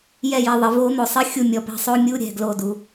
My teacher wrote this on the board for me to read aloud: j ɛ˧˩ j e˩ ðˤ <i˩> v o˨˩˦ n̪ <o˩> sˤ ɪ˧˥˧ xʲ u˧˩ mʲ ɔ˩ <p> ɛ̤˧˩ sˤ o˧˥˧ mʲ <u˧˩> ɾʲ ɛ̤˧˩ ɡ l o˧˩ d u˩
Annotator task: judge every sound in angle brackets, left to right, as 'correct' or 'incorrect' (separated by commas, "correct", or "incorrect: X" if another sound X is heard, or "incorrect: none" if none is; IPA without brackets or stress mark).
incorrect: ɪ˩, correct, correct, incorrect: u˧˥˧